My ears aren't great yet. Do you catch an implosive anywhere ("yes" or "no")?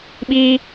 yes